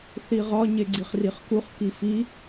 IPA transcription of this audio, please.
θ i ʁ ɒ ɲ e ɡ͡ǀ i χ r i χ k u χ k i f i

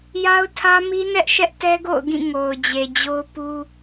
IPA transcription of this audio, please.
j a˦ ʊ̯ tʰ ä˦ m i˦ n ɛ˦ ʔ ʃ ɛ˦ ʔ t ɛ˦ ɡ o̰˦˨ ʊ̯ ɡ ĩ˦˨ ŋ o˨ ʊ̯ d͡ʑ e˨ d͡ʑ o˦ ʊ̯ p u˦

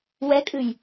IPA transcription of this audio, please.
w ɛ kʼ ɨ j

